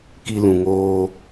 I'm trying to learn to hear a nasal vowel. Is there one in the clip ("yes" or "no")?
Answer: yes